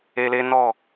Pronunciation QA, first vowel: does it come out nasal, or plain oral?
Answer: oral